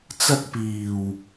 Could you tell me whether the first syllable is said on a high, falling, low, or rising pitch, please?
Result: high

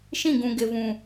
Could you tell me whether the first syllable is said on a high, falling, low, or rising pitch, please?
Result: falling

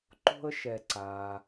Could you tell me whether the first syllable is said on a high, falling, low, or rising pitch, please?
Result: high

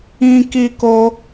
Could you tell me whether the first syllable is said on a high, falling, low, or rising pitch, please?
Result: high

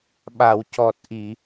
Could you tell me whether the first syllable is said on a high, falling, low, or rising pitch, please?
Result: low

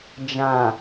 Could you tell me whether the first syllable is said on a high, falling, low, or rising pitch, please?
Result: low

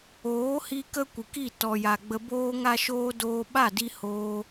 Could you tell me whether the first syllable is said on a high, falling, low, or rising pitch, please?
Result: rising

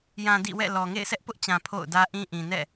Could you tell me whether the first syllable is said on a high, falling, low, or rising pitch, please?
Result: low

